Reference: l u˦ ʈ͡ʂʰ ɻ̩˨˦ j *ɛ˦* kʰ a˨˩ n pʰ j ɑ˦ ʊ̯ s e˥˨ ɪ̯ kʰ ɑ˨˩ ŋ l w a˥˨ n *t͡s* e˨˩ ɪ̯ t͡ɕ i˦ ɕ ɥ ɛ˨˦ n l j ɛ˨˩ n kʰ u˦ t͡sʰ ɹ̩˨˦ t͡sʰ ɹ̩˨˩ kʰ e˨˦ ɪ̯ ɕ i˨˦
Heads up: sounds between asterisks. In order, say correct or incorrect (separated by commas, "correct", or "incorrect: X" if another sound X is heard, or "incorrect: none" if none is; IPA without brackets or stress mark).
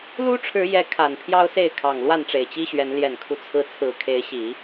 incorrect: ɛ˨˦, incorrect: ʈ͡ʂ